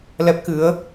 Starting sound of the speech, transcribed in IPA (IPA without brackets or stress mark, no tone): l